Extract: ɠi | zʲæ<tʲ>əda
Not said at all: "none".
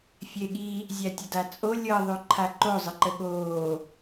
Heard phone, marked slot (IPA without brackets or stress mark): tʲ